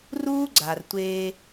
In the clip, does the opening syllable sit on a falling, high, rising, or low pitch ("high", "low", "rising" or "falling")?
high